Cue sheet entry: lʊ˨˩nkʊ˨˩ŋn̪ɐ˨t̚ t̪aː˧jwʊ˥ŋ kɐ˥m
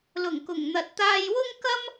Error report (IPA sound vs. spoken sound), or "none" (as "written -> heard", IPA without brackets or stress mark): n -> ŋ